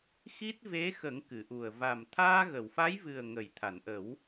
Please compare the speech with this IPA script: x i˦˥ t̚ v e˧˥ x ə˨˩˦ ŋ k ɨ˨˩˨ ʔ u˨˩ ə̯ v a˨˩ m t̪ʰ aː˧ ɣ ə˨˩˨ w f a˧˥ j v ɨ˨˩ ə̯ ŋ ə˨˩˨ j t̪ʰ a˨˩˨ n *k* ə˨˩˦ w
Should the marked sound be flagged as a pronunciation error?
yes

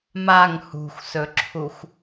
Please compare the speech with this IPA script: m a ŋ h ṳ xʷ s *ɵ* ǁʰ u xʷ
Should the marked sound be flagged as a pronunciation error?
no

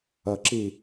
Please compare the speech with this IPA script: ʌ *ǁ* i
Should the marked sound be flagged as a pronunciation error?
no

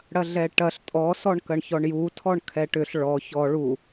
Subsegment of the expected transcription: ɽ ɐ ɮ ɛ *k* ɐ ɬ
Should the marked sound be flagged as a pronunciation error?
yes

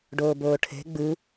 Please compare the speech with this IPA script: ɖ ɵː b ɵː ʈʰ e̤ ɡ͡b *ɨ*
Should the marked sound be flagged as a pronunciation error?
no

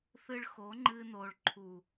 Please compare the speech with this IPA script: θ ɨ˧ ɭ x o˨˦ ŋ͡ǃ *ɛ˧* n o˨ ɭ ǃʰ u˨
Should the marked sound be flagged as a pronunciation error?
yes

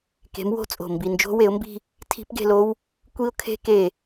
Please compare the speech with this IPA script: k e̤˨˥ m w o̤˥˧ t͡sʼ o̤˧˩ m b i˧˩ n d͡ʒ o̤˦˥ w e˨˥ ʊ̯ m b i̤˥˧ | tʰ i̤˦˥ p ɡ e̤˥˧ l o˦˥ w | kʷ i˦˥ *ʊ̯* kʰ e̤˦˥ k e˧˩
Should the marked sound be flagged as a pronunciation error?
no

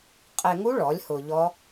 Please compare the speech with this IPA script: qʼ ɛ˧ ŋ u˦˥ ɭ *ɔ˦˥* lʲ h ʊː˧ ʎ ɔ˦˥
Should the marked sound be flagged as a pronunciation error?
yes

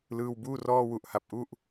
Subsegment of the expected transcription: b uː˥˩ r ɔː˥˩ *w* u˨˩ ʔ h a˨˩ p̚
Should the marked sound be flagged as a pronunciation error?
no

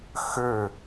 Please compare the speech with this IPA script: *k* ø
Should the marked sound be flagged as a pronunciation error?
yes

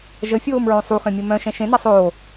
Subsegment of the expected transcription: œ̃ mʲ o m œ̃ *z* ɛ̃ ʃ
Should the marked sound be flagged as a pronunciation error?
yes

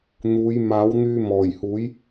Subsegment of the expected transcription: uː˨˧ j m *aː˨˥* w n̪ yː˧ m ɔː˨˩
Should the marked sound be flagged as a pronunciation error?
no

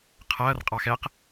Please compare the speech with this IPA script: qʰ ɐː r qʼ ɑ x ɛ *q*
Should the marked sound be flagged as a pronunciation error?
no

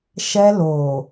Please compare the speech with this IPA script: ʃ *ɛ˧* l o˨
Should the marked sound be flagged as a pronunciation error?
no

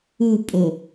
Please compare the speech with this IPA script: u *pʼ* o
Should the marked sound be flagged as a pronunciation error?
no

